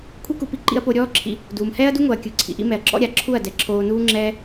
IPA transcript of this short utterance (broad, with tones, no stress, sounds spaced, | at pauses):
kʷʰ i˦ k u˧ p i˧ ǃ ḭ˧ ɐ̯ p o˧ ɾʲ ɔː˦ ǁʰ ḭ˧ | d uː˨ m h ɛː˦ ɐ̯ d u˦ ŋ o˨ ɐ̯ kʲ ɯ˨˦ ǀʰ ḭ˧ ʔ ḭ˦ m ɛ˨ ɐ̯ ǁ ɔ̰˦ ɾʲ a˨ ǁʰ u˦˨ ɐ̯ d ɛ˨ ǁʰ oː˧ n uː˦ ŋ͡ǁ ɛː˦